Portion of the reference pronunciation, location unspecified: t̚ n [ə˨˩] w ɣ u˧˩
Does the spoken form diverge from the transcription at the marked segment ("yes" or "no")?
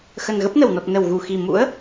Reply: no